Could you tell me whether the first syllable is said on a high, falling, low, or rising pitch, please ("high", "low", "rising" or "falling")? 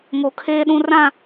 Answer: low